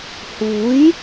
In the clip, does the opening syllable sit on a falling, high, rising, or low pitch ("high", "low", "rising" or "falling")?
rising